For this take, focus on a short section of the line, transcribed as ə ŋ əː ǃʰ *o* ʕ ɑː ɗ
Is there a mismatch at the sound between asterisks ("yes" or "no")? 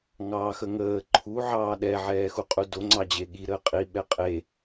yes